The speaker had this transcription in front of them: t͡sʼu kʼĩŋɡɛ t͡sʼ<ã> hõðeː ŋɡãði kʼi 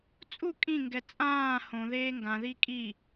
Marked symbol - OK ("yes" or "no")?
no